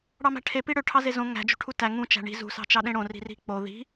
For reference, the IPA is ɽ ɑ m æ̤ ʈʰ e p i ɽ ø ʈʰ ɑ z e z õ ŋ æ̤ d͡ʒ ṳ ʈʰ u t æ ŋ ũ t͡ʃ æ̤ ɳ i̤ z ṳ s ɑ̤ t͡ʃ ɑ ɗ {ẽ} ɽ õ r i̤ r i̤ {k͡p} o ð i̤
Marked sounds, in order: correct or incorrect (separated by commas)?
correct, correct